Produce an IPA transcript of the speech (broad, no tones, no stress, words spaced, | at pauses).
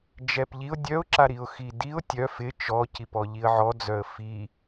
d͡ʒɛpʎiʊ̯ dʲœʊ̯ǁaɾiʊ̯ xidiʊ̯ tʲœ fɪ t͡ʃɔcip ɔʎiə̯ʕɔd͡zœə̯ fi